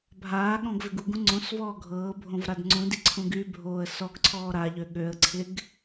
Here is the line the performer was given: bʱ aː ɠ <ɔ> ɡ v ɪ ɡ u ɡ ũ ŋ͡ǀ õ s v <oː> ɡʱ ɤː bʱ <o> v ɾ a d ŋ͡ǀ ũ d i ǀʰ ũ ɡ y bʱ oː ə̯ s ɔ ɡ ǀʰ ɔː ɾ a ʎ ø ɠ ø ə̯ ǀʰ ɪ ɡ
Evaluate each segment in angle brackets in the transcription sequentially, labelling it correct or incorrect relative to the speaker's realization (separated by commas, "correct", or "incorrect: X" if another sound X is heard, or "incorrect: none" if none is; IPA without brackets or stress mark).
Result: incorrect: ɔ̃, incorrect: ɔː, incorrect: õ